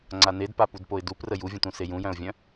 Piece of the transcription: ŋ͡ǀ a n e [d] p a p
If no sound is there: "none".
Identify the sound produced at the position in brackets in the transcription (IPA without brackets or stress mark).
d